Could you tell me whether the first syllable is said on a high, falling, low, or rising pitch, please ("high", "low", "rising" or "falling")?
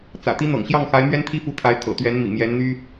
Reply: low